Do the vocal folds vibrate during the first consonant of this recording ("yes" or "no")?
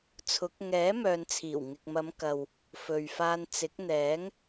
no